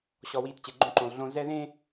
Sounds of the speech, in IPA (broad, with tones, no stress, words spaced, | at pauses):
ɕɔ˨wiː˨t t͡ɕe˨ɡ͡ǃõ˦ǃõ˨lˠ ɮõ˨ zɛ˦ðẽː˦